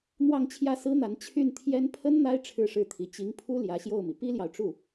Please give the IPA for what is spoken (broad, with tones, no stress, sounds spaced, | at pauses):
n̪ w ɑ˥˧ ŋ t͡ɕʰ j ä˥˩ s ɹ̩˥ n̪ a˧˥ n t͡ɕʰ y˥˩ n t̪ʰ j ɛ˥ n pʰ ə˥ n n̪ a˥ ɪ̯ ʈ͡ʂʰ ɻ̩˥˧ ʂ ɻ̩˥˩ t̪ʰ i˧˥ t͡ɕ i˧˥ ŋ pʰ u˥ l j ä˧˥ ɕ j o˥˩ ʊ̯ m i˩ p i˥ l j ɑ˨ ʊ̯ ʈ͡ʂ u˥˩